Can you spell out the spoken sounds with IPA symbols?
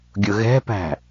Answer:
ɡʲ ʊ ɣ ɛ̤ p æ̤

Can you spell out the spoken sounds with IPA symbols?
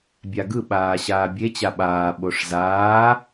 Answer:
bʲ a ɡ ɯ ɓ aː ɕ aː bʲ e t͡ɕ a ɓ aː ɓ o ʂ z aː

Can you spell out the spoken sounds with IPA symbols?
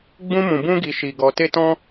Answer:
ɡ͡b ũ˦ m ũ˧ b ũ˦ ɡ i˧ ʃ i˧ ɡ ɔ˧ t e˦ t ɔ̃˦

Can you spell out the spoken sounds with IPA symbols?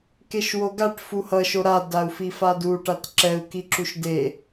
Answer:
k e ʃ w o ɡ a ʈ f u h ʌ ʃ o ɾ a d a u̯ f i f a d u ʈ a t ǁ ɛ u̯ k i ǁ u ʃ d e

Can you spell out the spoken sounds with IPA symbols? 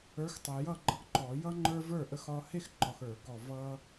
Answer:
ə˞˨˥ x tˤ ɛ˨ j ʌ˥˩ ɡ͡ǃ ʌ˦ ɡ ǃ ɔ˨˩˦ j ʌ˦ ŋ͡ǃ ə˞˦ v ə˞˥˩ ʔ ə˦ x ɒ˦ h e˥˩ x ǃ ɒ˨ x ə˞˨˩˦ ɡ ɔ˨ v ʌ˦

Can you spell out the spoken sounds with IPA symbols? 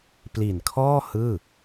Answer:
p l i˨˩ n kʰ ɔː˥˩ h ɯː˥˩

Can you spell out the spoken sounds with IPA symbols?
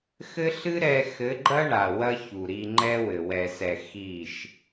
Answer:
x ɘ˦ ɬ ɨ˦ ɾ ɛ˧ x ɘ˨˦ ɡ͡ǃ ɐ˦ ɳ a˨ w ɐ˦ ç u˨ ɾ i˧ ŋ͡ǃ ɛ˦ w ɘ˨ w ɛ˨ s ɛ˨ x i˦˨ ʃ

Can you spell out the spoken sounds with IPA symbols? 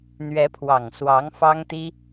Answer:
n̪ ɥ ɛ˧˥ pʰ w ɑ˨˩ ŋ s w ɑ˧˥ ŋ f ɑ˥ ŋ t̪ i˥

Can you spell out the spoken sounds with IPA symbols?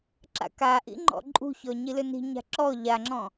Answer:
ǁ a̰ k a ʔ ḭ ŋ͡ǃ ɔ̰ ǃʼ ṳ ç ɔ ɲ i l ʏ n i̤ ɲ a̤ ǁ ɔ ʎ a ŋ͡ǁ ɔ̃

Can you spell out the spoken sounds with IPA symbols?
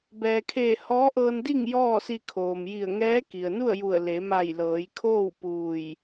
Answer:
b ɛː˩ kʰ eː˧˩ h ɔː˧˥ ʔ ɤː˧ n d i˥˨ ŋ j ɔː˥˨ s i˧ kʰ oː˩ m j i˧˩ ə̯ ŋ ɛː˧˥ k i˩ ə̯ n u˥˨ ə̯ j u˧˩ ə̯ l e˩˧ m a˧˩ j l ɤː˩˧ j kʰ oː˥˨ w p uː˧˩ j

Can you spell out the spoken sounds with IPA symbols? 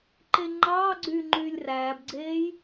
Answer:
ǃ e ŋ͡ǃ ɑː ɡ͡ǀ yː ŋ͡ǃ yː lʲ r æː b ɡ͡ǀ eː j

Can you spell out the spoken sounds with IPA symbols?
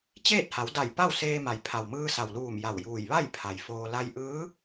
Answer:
t͡ɕ eː˥˨ t̚ h a˩˧ w d a˧˩ j p a˥˨ w s eː˧ m a˩ j pʰ a˩ w m ɯː˧ s a˩ w l uː˧˩ m j a˧˩ w j uː˧˩ j ʋ a˥˨ j pʰ a˩ j f oː˧ l a˧ j ʔ ɯː˧˥

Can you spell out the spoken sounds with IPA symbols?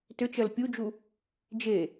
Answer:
t ʏ t͡ʃ ɜ l pʲ u d͡ʒ u | d͡ʒ e

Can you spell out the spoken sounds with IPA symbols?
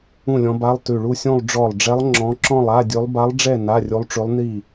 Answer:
ũ˥˨ lʲ ɔ̃˧˥ b a˧˥˧ lˠ t ʉ˧˩ ɭ u˥˨ sʲ ũ˥˨ lˠ ɖ͡ʐ ɔ˧˩ lˠ ɖ͡ʐ ɛ˧˥ lˠ ŋ͡ǁ ɔ̃˧˥ ǁ ɔ̃˥˨ lˠ a˧˥˧ dʲ ʉ˧˥ lˠ b a˧˥ lˠ ɖ͡ʐ ɛ˥˨ n a˧˥˧ rʲ u˧˥ lˠ ʈ͡ʂ ʉ˧˥ lˠ n i˥˨

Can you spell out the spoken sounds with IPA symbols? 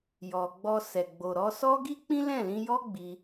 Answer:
j ɔ˨ ɡ͡b ɔ˧ s ɛ˨ ɡ͡b o˨ ɾ ɔ˧ s ɔ˦ ɡ i˦ k͡p ĩ˦ l ɛ̃˦˨ l ĩ˧ j ɔ˦ ɡ͡b i˧

